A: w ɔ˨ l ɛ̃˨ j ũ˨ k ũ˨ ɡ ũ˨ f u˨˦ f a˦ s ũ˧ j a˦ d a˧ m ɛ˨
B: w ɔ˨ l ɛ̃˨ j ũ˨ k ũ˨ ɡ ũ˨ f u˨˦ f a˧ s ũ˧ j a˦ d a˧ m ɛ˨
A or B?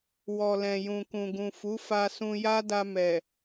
B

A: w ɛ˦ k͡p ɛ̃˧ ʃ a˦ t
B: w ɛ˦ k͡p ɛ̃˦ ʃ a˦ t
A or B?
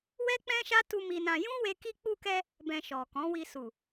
B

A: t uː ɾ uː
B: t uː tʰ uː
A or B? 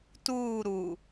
A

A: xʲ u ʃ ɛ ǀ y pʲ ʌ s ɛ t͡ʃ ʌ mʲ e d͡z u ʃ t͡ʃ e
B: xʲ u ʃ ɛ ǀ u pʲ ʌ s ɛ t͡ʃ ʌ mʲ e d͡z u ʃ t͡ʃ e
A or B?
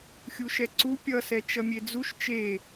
B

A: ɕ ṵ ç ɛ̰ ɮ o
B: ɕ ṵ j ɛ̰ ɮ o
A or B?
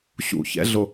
A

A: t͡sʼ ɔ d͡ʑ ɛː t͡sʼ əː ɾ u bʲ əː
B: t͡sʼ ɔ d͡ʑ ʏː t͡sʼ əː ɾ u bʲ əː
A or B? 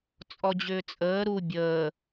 B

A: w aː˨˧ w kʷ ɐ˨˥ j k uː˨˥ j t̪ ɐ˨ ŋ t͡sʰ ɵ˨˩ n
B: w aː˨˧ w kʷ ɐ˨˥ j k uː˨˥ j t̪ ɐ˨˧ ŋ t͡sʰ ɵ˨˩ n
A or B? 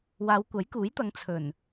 B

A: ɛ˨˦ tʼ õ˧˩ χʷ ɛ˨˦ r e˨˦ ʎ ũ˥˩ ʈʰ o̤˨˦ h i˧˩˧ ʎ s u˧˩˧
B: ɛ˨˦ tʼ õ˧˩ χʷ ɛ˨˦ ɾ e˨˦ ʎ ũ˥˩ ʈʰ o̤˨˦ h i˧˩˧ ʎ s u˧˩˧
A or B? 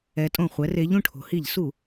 A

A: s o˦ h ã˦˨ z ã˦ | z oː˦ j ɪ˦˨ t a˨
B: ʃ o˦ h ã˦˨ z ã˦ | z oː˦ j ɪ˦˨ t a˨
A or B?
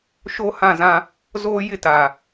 B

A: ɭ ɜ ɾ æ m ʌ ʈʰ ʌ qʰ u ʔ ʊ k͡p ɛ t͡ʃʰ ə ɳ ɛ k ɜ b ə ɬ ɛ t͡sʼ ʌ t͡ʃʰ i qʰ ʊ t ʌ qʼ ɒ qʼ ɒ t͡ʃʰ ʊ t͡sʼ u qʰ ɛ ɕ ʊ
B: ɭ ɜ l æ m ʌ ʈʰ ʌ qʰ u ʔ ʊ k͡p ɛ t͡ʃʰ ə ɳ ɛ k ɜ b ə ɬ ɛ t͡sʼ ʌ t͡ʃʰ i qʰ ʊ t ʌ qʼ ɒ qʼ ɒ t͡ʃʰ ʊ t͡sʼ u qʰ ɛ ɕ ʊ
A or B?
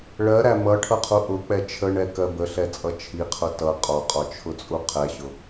A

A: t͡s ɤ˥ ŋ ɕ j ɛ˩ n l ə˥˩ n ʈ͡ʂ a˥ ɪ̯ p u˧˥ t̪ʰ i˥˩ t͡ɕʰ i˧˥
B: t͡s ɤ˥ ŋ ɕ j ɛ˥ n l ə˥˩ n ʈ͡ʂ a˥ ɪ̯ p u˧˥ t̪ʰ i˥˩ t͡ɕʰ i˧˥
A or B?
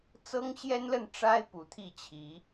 B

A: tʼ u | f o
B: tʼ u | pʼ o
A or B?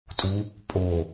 B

